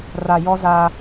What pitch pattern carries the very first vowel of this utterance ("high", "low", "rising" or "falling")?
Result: low